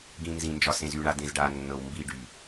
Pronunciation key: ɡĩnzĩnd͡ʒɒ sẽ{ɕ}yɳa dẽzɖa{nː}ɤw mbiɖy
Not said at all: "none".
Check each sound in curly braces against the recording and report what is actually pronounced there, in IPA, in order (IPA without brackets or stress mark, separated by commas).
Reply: z, nː